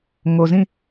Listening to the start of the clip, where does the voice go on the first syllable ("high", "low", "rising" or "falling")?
low